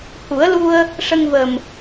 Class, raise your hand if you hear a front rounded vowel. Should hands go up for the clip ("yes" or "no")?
no